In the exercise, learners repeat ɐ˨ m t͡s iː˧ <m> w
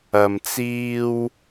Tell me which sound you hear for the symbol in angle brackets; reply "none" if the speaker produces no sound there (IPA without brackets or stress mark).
none